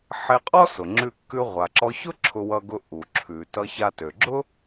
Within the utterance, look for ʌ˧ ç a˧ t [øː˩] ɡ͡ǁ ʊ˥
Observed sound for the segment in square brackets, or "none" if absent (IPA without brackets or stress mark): ø˩